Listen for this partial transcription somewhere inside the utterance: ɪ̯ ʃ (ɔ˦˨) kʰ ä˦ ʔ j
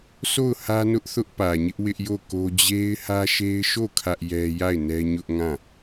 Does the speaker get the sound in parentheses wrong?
yes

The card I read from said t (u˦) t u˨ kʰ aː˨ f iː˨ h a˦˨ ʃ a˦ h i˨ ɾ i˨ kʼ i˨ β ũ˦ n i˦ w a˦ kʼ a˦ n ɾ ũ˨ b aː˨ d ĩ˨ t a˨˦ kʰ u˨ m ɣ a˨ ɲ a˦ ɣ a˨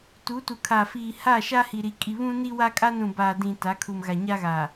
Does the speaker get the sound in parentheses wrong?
yes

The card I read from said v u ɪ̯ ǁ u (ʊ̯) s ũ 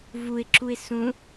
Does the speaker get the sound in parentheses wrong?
yes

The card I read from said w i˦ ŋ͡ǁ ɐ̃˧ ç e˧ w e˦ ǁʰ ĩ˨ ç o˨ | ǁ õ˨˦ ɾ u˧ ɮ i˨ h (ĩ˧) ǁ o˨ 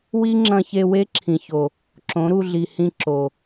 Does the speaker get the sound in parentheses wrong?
no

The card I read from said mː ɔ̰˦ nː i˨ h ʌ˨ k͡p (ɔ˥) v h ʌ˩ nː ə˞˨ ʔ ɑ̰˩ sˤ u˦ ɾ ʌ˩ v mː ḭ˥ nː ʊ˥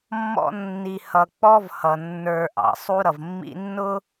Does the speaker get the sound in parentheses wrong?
no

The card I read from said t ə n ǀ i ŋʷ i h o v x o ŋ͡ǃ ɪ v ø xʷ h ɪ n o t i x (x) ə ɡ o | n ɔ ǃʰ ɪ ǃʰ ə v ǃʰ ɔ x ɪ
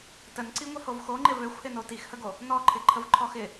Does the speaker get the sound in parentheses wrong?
yes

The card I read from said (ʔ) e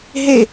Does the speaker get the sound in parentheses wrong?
yes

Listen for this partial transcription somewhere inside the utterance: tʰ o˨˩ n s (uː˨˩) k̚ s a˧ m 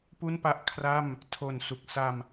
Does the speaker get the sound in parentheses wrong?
yes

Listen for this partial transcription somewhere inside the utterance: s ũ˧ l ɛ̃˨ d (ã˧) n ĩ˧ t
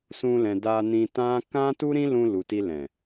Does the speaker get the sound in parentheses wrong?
yes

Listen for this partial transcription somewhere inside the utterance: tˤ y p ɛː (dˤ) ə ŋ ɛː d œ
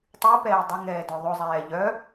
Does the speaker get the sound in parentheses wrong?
no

